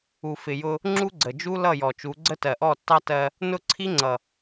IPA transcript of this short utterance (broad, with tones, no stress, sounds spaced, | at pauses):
u˨ f ɪ˨ j ʊ˧ | ŋ͡ǁ u˦ ɡ͡ǀ ə˨ d͡ʒ u˦ l ʌ˦˨ j ɔ˨ t͡ʃ u˨˦ ɡ͡ǀ ə˦ t ɜ˨ ʔ ɔ˦˨ tː ɑ˦ t ɜ˧ | n ʊ˦˨ ǀʰ i˦ ŋ͡ǀ ʌ˨